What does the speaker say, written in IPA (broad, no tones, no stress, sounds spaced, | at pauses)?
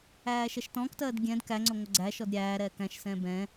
æː ʃ ɛ ʃ t ɔ̃ː k t ɜː d ɡʲ ɛ̃ d k æ ŋ͡ǀ ʊ ŋʷ ə ɡ͡ǀ æ ʃ ɔ d ɾʲ æː ɾ ɛː k æ̃ ʃ s ɛ̃ː b ɛ̃